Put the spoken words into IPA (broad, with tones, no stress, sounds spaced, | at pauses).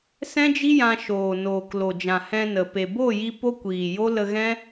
s ɛ̃˦ d͡ʒ i˦ j ã˧ ʃ oː˨ n oː˨ k l o˨ d͡ʒ ã˨ h ɛ̃˧ n ə˨ p e˨ b o˦˨ j i˧ p o˦ kʷ iː˨ j o˦ l ə˧ ɣ ɛ̃˦